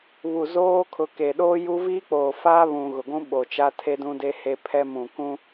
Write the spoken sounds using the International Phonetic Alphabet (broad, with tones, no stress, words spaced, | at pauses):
βu˨zoː˦ kʰʊ˨ke˨ɗoː˦ ju˦ viː˦k͡poː˨faː˦ βũ˨ɣʊ˨ɡʷũ˦ɓo˨ t͡ʃa˦tʰe˦dũ˦de˦ he˦pʰɛ˦ mũ˨kũ˦